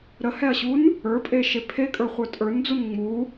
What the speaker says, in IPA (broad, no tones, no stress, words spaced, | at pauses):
ɾəhɛɐ̯ɕun | ə˞pʼeʃe pʰekʼə˞χʷə˞ tʼə˞nd͡zun ŋ͡mu